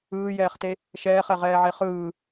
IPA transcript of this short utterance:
ɯːjɛːχte | ʃɛːχɛʁɛːʕe χɯː

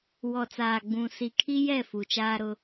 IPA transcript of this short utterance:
wɔ˨t͡saː˨ ɡ͡bũ˨ si˨kʰi˦ jɛ˦˨ fu˨t͡ʃaː˦ɾʊ˦

